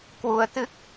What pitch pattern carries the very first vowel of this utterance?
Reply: rising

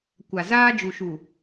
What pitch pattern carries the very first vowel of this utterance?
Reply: low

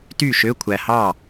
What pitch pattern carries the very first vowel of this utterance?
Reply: falling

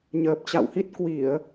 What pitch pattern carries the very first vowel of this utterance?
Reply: low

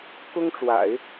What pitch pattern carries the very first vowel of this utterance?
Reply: high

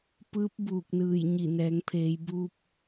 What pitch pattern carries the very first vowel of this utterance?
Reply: rising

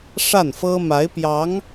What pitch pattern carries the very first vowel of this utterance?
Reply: falling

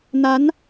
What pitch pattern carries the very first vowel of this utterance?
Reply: rising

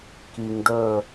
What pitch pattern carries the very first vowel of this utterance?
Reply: low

